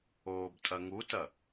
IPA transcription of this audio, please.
oː b tʼ ɐ ŋ u t ɐ

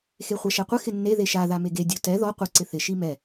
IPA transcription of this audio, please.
x e χʷ a ʃ ɛ qʷ ɪ x ɪ nː e ð e ʃ a ð a m e ɡ e dʲ o t ɛ ð ɔ qʷ ɪ ǀ ɪ θ ɪ ʃ i m ɛ

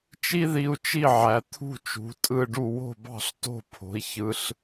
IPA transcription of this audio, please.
t͡ʃ i˥ ð i˧ u̯ t͡ʃ i˥˩ ʕ æ˩ t̪ʰ ṳ˥˩ t͡ʃ ṳ˩˥ tʼ ɯ˥˩ ɖ u˥˩ w o̤˥˩ b ɑ̤˥˩ ɬ t o̤˥˩ pʰ o̤˩˥ i̯ ç ɯ˧ ɬ

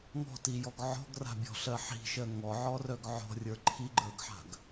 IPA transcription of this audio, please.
ŋ ɔ̤ t i j ɔ ɡ ʕ ɔ̤ ɡ r a̤ bʲ ɔ̤ ɬ ɜ ħ i̤ ʃ ɜ ŋ ɔ ʕ ɔ r œ ɡ ʕ ɔ̤ rʲ ə˞ ǃʰ i ɡ͡ǃ ə˞ ɡ ħ a̤ ɡ

